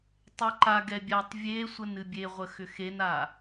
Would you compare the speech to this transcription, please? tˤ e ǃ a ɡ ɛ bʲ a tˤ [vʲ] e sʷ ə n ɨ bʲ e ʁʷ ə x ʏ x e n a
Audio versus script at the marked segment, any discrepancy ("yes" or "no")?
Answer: no